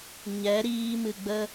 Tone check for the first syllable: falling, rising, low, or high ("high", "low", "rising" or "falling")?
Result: rising